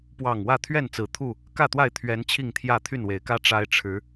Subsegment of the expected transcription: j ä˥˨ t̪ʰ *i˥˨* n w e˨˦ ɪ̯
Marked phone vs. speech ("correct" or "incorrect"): incorrect